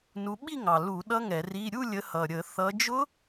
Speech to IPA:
n u˨˦ ɓ i˥˧ ŋ ɑ˨˩ l u˧˩˧ ɗ ʌ˦˥ ŋ ɛ˧˩˧ r i˧˥˧ ɾʲ u˥˧ lʲ ə˨˦ h ʌ˨˩ ɾʲ ə˧˩˧ θ ʌ˨˦ d͡ʒ ʊ˦˥

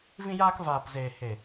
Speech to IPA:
v ĩ˧ j aː˧ k v aː˨ p z eː˨ h e˨

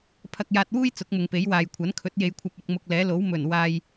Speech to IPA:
pʰ ɐ˧ k̚ j aː˧ t̚ w uː˥ j t͡s ʊ˨˥ k̚ m ʊ˨ ŋ p e˨˥ j w aː˨ j kʷʰ ɐ˨˥ n kʰ ɵ˨˥ t̚ j e˧ j kʷʰ ɐ˧ p̚ ɐ˧ k̚ m ʊ˧ k̚ l ɛː˨˥ l o˨˥ w m ɵ˨˩ n w aː˧ j

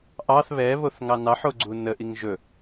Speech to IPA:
ʔ ɑ θ β ɛ β o θ ŋ ɑ n ɑ ħ o ɡ͡ǀ u n ə ʔ i ŋ ʒ ɵ

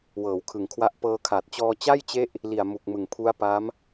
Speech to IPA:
w ɤː˩˦ w kʰ ɯ˨˩ ŋ kʰ w a˦˥ ʔ p ɤː˧ kʰ a˨˩ t̚ t͡ɕ ɔː˧ t͡ɕ a˥˩ j t͡ɕ e˦˥ ʔ | l i˨˩ a̯ m u˨˩ k̚ m ɯ˨˩ ŋ pʰ u˦˥ a̯ p a˦˥ m

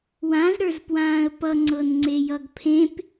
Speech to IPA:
w ã z ɾ ə˞ z p w ãː ə̯ p ʌ ŋ͡ǀ ɤ n ŋ͡ǀ e j ʌ ɡ pʰ ẽ p

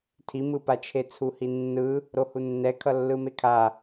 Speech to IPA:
tʰ i m ɯ p a t͡ʃʰ e t͡sʰ u h i nː ɯ | ɾ o h u nː ɛ kʰ ʌ lː ɯ m e kʰ a

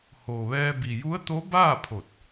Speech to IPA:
h o˩ ʋ ɛː˧ b i˩ j u˧˥ ə̯ t̪ o˧˥ b aː˥˨ pʰ o˧˩ t̚

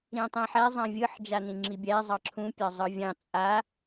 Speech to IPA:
ɾ ĩ tˤ ĩ ħ æ zˤ ã vʲ ɯ ħ d͡ʒ a n ĩ ŋ͡ǁ i bʲ æ zˤ ɑ ǁʰ ũ pʲ ɑ zˤ ɯ vʲ ɑ̃ t͡sʼ a

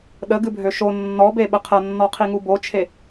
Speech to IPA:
ɗ ə ɡ ɨ bʱ ø ʃ o nː ɔ b e ɓ ə qʰ ɐ nː ɔ qʰ i ŋ u b o t͡ʃʰ e

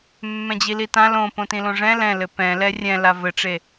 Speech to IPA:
mː ɛ̃ d͡ʑ i l i t ã l õ p õ t ĩ l õ ʐ ɛ̃ l ɛ̃ l ɘ p ɛ̃ l ɛ rʲ ɛ̃ l a v ɘ ʈ͡ʂ e

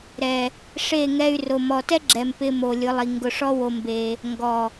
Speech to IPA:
ɾ ɛ˨ | ʂ e˦˨ ŋ ɛ˧ y̯ r o˨ m ɔ˨ t ɛ˦ ɡ͡ǁ ɛ˨ m p ɪ˧ m o˨ lʲ ʊ˨˦ lˠ i˨ ŋ ɡ ʊ˧ ʂ ɔ˦ w o˧ m b e˧ | ŋ ɡ ɔ˨

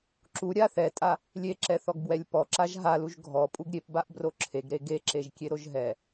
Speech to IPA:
ǁ u ɾʲ a θ ɛ tʼ a | lʲ e ǁ ɛ θ ɔ ɡ b w ɛ lʲ p ɔ ǁ a ʒ ɦ a l u ʒ ɡʱ ɔ pʼ u ɡ ɾʲ e p b a ʔ b r o ǁʰ e ɡ ɾ e ɡ e ǁ e ʒ kʲ e ɾ o ʒ ɦ ɛ

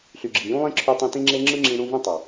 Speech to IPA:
ɬ y˨ ɡ͡ǁ i˨ j ũ˦ lˠ ĩ˦ ǁʰ y˧ tˤ ĩ˧ t ĩ˦ ŋ͡ǁ e˦ ŋ͡ǁ ɯ˦ ŋ͡ǁ ĩ˧ ɽ ũ˦ v ĩ˦ tˤ ɑ˨

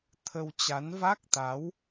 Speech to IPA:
t̪ʰ ə˧ w t͡ɕ a˨˦ n v a˦˥ k̚ t̪ a˨˦ w

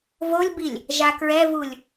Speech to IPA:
v o lʲ b i lʲ | ʒ a k ɹ ɛ v u lʲ

